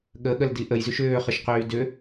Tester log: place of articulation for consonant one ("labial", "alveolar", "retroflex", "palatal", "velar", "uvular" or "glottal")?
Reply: velar